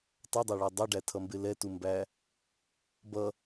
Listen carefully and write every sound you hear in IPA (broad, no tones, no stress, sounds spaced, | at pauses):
tˤ ʌ dˤ ʌ ɭ ɔ dˤ ʌ ɖ æ tʰ ʌ m b ɪ l ɛ t u m b æ | b ʌ